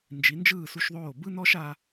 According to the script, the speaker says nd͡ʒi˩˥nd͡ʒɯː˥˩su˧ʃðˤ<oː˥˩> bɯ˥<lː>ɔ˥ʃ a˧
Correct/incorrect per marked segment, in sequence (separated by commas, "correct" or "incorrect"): correct, incorrect